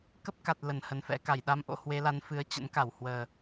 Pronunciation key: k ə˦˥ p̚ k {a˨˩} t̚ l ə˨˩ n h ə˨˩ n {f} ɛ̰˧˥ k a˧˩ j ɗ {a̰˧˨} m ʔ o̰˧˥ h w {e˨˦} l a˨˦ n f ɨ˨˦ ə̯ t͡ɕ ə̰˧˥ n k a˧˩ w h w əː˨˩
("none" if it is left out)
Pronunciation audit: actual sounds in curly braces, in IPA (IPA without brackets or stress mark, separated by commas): a˨˩, f, a˧, e˨˦